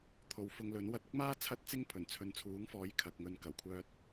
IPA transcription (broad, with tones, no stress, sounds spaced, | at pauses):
t̪ʰ o˨˧ w f ʊ˧ ŋ l ɵ˨˥ n w ɐ˧ t̚ ʊ˥ k̚ m aː˥ t͡sʰ ɐ˥ t̚ t͡s ɪ˥ ŋ pʰ ɵ˨˩ n t͡sʰ ɵ˨˧ n t͡sʰ uː˨˥ ŋ f ɔː˨˥ j kʰ ɐ˨ k̚ ŋ ɵ˧ n k ɐ˨˩ w kʷʰ œː˧ t̚